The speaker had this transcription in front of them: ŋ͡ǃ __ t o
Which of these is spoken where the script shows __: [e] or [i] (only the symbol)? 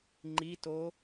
i